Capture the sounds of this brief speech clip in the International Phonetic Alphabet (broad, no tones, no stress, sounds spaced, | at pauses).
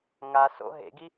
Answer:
ŋ a s o̰ ɦ ḛ ɡ i